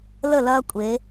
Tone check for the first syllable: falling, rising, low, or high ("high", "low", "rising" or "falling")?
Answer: falling